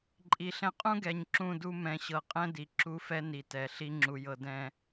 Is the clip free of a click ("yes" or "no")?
no